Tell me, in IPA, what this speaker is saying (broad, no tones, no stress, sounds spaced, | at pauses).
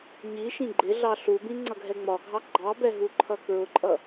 ɲ i ʃ ĩ ɡ͡ǃ ɪ ɮ ɑ ɬ u b ĩ ŋ͡ǀ ʌ ɡʱ ɛ ŋ͡m ɒ ɡʱ ɑ ɡ͡ǃ ɑ b ɛ ɦ u ǃʰ ʌ k ɹ ʊ ǃʼ ʌ